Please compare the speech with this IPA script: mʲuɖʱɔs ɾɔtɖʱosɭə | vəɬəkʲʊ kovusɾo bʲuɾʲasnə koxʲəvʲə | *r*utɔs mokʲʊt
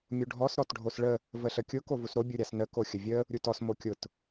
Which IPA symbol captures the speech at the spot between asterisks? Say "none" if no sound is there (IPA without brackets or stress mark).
ɾʲ